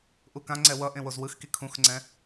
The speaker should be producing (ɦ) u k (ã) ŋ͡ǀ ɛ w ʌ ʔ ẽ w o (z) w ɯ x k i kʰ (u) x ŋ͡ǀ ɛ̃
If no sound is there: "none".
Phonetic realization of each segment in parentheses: ʔ, ã, z, ũ

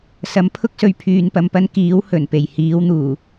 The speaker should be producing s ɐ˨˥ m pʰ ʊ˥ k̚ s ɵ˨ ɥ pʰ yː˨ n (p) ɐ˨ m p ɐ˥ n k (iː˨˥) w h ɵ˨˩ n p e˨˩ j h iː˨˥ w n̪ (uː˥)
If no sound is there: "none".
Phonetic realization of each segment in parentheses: p, iː˨˥, uː˨˩

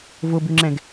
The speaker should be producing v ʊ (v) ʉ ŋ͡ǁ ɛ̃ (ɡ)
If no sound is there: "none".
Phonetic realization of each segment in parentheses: b, ɡ

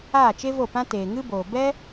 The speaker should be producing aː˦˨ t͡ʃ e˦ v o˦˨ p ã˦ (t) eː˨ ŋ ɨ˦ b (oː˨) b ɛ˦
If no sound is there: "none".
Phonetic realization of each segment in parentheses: t, oː˨

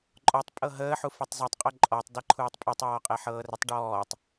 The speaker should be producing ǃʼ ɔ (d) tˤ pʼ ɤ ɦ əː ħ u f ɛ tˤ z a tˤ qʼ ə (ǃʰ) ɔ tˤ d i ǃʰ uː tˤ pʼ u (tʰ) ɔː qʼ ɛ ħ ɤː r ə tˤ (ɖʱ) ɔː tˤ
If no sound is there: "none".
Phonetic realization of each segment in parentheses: none, ǃʼ, tˤ, ɖ

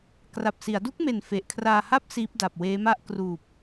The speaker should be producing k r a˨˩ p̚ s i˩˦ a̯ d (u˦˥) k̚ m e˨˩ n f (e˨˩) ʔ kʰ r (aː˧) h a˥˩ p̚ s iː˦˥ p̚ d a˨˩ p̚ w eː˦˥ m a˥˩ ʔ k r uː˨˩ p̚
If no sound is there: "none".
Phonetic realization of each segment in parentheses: u˦˥, e˨˩, aː˧

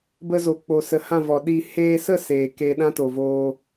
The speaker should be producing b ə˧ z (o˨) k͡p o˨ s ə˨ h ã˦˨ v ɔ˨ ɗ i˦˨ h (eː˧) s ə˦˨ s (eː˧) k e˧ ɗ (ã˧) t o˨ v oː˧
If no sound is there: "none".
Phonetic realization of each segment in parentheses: o˨, eː˧, eː˨, ã˦

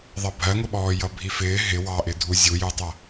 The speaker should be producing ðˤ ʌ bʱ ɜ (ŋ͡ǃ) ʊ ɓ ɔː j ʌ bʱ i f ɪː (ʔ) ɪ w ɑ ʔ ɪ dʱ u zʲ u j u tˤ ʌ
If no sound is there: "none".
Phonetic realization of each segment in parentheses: ŋ, ɦ

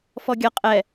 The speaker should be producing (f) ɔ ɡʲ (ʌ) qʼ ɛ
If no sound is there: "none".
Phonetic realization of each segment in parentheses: f, ʌ

